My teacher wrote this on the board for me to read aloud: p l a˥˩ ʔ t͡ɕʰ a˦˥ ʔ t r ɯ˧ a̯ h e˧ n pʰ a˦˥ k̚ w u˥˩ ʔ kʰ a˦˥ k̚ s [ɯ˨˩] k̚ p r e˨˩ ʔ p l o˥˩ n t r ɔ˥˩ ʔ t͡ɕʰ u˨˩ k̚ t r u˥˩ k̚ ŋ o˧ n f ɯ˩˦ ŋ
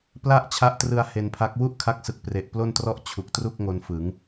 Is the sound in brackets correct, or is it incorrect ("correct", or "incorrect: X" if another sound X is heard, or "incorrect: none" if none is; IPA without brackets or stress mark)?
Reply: correct